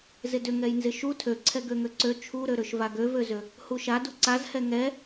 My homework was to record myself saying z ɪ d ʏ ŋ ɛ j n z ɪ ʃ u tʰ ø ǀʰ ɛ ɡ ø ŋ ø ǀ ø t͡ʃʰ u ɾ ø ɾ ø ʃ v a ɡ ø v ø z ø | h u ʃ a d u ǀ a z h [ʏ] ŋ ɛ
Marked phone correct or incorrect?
incorrect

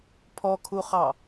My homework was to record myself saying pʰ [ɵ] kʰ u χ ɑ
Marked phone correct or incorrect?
incorrect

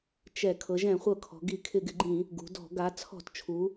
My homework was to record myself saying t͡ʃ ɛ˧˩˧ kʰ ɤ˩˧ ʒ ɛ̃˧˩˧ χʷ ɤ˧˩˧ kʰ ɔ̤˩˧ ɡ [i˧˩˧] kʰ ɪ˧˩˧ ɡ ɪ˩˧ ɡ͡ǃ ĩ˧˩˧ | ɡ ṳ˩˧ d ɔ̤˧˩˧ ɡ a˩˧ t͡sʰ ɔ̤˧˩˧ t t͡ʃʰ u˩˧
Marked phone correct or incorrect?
correct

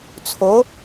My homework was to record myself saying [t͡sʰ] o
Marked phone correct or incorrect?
correct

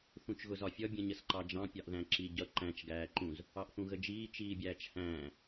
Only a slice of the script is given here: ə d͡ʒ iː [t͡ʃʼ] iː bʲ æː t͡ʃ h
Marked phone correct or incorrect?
incorrect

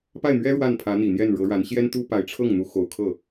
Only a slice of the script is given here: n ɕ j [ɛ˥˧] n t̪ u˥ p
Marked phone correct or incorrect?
incorrect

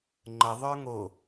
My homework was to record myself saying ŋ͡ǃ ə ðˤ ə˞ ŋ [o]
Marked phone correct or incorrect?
correct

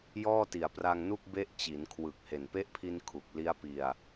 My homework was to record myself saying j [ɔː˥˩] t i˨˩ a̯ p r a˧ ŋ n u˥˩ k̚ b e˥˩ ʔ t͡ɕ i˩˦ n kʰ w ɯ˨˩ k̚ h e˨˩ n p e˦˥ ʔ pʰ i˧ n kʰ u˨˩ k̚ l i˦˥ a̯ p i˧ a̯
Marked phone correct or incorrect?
correct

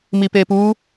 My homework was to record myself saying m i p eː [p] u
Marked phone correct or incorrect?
correct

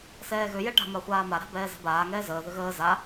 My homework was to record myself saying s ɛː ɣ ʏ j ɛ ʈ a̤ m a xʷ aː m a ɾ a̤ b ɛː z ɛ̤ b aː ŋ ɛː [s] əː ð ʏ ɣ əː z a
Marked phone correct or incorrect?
incorrect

